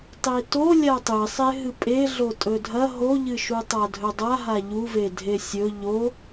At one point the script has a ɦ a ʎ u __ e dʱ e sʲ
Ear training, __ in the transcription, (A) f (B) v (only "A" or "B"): B